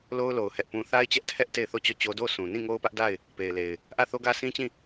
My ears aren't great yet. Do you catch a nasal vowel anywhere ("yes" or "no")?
yes